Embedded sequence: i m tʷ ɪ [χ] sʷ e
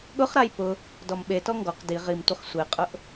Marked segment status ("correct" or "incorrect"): correct